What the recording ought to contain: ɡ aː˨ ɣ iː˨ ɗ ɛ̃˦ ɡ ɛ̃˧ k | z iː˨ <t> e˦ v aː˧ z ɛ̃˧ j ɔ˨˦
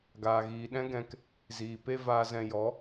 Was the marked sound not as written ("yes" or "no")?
yes